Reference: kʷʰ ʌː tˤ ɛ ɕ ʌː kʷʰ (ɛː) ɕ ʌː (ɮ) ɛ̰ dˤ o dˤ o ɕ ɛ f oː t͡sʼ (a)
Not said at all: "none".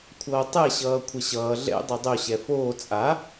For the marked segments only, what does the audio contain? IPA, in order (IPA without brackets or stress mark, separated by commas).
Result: ɛ, ɮ, a